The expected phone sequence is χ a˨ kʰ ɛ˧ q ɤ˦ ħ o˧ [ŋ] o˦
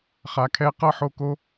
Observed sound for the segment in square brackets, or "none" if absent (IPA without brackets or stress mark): k